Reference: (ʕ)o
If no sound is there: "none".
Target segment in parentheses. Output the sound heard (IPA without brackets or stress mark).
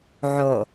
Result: ʕ